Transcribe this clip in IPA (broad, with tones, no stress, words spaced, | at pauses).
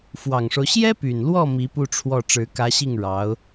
fwɑ˨˩ŋʂo˦ʊ̯ ɕjɛ˥py˨˩nlwɔ˥˩ mi˧˥pu˥˧ʈ͡ʂʰwɔ˥˩ ʈ͡ʂɻ̩˧˥kä˧˥ɕi˥˩ŋ ɻɑ˧˥ʊ̯